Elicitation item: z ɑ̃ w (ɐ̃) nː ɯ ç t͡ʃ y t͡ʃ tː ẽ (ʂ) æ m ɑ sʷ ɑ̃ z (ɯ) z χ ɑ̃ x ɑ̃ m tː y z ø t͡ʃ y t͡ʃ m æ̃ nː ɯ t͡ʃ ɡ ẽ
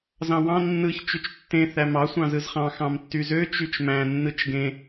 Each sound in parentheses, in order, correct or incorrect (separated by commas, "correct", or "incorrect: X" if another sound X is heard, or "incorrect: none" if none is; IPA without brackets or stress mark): incorrect: ɑ̃, incorrect: θ, correct